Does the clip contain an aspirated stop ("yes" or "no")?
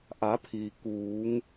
yes